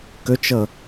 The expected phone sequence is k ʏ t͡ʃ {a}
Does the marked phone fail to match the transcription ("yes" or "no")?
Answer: yes